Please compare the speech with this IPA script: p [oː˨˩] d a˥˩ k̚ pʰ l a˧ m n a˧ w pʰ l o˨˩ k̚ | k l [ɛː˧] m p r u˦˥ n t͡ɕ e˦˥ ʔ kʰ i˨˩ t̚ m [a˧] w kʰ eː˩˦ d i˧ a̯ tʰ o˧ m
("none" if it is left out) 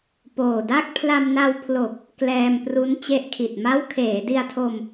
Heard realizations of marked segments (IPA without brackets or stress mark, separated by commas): oː˨˩, ɛː˧, a˦˥